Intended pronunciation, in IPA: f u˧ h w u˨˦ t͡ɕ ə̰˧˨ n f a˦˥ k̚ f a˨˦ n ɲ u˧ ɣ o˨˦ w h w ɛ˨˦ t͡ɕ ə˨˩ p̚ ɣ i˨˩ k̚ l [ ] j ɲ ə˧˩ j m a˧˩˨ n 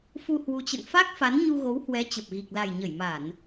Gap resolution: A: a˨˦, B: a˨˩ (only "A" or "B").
B